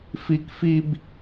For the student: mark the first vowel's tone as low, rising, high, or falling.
high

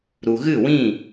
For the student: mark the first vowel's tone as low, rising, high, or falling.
low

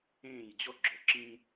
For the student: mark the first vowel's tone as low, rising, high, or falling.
falling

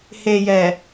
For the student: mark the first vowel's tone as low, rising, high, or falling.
low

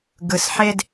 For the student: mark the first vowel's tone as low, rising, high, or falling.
rising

